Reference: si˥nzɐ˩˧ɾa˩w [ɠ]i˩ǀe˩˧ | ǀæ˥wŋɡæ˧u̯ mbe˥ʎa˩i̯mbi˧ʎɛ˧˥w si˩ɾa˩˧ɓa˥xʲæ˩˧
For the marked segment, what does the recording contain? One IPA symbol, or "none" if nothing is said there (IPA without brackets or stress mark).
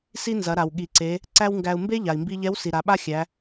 ɠ